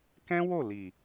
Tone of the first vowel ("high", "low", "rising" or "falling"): high